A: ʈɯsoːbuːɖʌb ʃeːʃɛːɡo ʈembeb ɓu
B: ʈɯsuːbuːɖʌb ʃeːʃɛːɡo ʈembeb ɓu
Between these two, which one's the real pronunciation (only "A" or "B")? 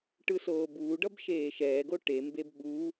A